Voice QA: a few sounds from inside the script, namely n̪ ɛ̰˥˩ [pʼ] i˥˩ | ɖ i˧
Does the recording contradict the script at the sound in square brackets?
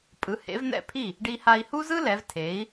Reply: yes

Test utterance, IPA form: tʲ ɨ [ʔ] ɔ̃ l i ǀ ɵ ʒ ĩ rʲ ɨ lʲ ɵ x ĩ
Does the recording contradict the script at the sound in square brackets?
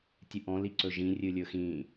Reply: no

